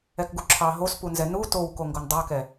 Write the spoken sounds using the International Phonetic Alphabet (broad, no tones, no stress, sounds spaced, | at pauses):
ɛ k ɡ u ǁʰ ɑ ɦ o s p u n z ɛ n u t o w k o ŋ ɡ o n dˤ ɑ k ɛ